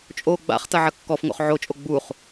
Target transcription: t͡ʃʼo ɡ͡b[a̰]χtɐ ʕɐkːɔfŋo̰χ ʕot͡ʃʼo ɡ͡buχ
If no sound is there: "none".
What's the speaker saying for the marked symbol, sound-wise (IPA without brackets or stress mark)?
a̰